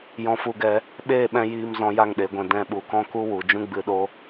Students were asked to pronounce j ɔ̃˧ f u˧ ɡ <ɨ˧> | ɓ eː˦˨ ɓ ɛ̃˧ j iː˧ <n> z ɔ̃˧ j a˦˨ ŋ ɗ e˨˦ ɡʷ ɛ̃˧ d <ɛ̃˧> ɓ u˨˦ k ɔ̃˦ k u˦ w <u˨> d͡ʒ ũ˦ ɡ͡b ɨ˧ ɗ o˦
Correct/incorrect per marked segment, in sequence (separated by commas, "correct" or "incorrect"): incorrect, incorrect, correct, correct